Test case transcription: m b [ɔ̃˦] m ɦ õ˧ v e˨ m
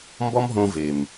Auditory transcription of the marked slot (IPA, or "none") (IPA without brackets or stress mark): ɔ˦